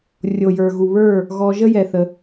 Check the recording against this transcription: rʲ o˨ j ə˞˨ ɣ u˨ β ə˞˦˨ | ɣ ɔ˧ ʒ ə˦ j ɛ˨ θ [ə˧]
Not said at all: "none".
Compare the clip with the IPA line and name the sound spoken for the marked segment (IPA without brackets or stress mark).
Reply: ə˧